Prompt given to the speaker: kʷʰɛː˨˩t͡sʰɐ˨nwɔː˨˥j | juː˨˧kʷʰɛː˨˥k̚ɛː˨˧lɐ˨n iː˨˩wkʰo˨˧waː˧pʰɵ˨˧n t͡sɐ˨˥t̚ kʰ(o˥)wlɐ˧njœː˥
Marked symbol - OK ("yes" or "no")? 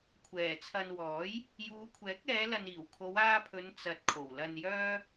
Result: no